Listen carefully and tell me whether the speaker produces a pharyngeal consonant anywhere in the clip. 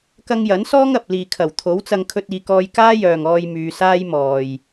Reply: no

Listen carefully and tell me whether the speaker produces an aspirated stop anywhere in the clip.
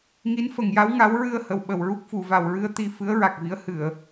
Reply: no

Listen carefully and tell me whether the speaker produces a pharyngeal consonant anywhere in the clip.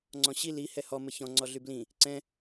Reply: no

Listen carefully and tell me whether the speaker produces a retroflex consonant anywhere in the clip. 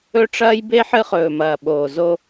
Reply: yes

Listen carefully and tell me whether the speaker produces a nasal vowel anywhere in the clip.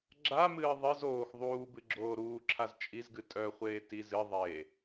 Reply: no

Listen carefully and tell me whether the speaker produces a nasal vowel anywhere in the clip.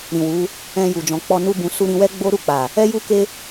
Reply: yes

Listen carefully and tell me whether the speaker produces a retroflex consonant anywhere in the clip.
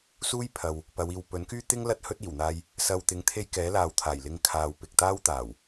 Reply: no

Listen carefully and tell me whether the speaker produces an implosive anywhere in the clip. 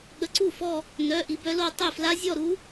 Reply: yes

